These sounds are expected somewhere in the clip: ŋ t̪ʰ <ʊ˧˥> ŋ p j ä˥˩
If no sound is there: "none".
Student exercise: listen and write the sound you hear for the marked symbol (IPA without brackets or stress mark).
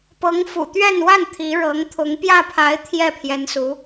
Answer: ʊ˧˥